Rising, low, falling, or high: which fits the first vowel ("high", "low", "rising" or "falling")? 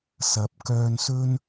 rising